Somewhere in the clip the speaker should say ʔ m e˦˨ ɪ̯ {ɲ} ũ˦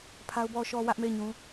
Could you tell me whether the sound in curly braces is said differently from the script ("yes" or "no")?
no